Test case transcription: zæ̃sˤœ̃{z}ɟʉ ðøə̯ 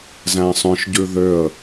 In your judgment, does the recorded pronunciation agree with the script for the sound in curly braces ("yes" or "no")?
no